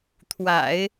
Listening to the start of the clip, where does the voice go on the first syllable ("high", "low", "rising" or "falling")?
low